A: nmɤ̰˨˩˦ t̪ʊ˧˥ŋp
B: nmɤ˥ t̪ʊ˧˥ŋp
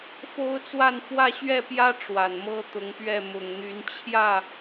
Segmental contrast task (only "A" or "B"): B